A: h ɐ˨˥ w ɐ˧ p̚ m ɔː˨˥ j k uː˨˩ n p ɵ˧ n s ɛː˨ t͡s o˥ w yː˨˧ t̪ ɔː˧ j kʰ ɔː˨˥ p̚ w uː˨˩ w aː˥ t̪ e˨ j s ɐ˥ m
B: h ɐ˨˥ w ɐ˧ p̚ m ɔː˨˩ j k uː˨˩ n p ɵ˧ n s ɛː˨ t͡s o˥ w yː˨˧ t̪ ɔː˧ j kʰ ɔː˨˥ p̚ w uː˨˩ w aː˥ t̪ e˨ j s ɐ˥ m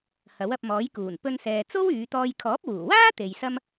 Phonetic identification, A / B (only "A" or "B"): A